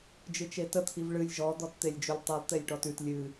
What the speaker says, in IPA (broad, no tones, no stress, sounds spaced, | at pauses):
d͡ʒ ɨ t͡ʃ e t ə t̪ʰ i v ɭ ɨ lʲ ʒ ɔ d̪ ɔ t t̪ e lʲ d͡ʒ ʉ lʲ tˤ i lˠ t̪ e lʲ ʈ ɔ t ʉ t lʲ ɨ